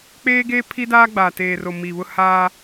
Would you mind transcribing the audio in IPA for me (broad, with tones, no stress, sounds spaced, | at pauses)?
k͡p eː˦ ɡ eː˦ pʰ i˦ d aː˦ ɡ͡b aː˨ t eː˨ r o˨ m i˨ β ʊ˦ h aː˦